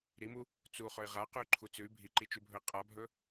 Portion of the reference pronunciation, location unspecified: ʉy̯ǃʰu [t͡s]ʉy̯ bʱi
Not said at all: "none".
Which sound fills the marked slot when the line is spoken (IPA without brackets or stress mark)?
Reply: t͡s